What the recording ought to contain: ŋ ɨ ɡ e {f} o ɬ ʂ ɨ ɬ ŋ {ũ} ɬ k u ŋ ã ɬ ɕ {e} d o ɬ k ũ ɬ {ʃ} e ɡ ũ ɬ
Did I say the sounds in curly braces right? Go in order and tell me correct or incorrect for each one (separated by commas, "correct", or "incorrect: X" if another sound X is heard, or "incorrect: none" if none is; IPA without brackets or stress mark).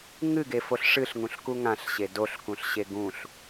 correct, correct, correct, incorrect: ɕ